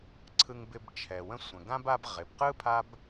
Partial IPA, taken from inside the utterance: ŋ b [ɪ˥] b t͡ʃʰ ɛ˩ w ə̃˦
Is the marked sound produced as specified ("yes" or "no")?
no